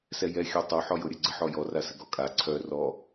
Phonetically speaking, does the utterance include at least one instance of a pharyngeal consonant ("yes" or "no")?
yes